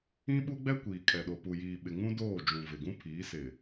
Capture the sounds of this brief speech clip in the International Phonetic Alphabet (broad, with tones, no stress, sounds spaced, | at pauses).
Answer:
ĩ˦ ɓ u˦ ɡ͡b ɛ˦ kʷ iː˨ kʼ ɛ˨ ɗ o˨ p u˨ j iː˨ ɓ ɪ˨ ŋ ũ˦ d oː˦˨ d͡ʒ ũ˨ v ɪ˨ ɡ ũ˦ pʰ iː˨˦ s ɪ˨